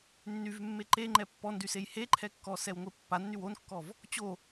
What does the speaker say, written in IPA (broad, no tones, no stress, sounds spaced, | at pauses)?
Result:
nː y v mː e ǃ e ŋ͡ǃ ɛ pː ɔ n d y s e j h e ǃʰ ɛ kː ɔ s ɛ w ŋʷ e pː a nː y w o n kː ɔ v | t͡ɕ o